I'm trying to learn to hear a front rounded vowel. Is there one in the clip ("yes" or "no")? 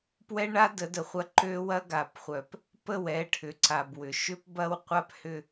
yes